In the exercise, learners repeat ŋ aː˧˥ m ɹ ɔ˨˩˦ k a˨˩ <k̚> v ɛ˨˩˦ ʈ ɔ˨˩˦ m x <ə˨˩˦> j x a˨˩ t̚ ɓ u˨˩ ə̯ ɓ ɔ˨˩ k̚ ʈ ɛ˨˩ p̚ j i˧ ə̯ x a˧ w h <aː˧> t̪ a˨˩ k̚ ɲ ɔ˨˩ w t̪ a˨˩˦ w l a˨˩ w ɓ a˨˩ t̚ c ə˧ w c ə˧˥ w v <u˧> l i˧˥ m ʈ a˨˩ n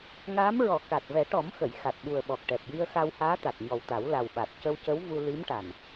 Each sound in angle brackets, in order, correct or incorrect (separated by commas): incorrect, incorrect, incorrect, correct